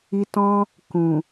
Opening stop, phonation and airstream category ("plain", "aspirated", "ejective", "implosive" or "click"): plain